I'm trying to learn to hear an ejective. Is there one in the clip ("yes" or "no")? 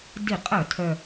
yes